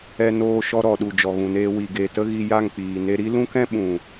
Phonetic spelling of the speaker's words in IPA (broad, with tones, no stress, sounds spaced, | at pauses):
ɛ˧ n oː˧ ʃ ɔ˧ ɾ ɔ˨ ɗ u˨ d͡ʒ ɔ˨ ɣ ũ˨ n eː˧ w i˨ ɡ e˨ t ə˦ ɣ i˧ j a˦˨ ŋ k͡p iː˨ n e˧ ɾ i˦ l ũ˦ k ɛ̃˦ ɓ ũ˨